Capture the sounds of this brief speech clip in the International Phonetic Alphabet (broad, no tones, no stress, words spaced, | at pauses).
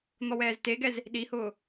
n̪ɔwɛːzteɡɛz | ɗihʊː